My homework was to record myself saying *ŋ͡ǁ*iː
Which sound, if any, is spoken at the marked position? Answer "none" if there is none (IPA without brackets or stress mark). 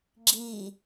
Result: ɡ͡ǁ